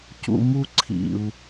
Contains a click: yes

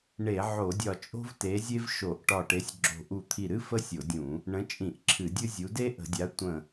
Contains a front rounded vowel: no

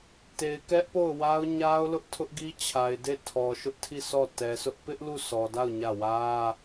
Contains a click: no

